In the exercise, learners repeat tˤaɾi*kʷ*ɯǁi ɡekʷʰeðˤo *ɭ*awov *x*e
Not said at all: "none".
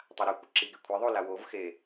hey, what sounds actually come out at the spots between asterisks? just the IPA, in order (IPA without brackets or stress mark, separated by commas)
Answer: kʷ, l, x